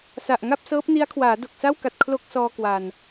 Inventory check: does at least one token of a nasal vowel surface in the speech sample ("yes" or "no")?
no